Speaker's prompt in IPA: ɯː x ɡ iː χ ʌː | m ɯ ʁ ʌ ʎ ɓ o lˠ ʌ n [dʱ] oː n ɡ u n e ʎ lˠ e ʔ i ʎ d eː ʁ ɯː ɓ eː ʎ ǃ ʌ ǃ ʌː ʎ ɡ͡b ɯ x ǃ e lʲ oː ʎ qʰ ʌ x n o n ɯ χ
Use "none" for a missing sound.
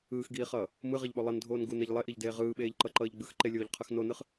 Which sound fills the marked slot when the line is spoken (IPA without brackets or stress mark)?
dʱ